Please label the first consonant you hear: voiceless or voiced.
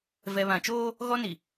voiced